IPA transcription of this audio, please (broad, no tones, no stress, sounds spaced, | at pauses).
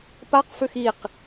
p a q f ø x i q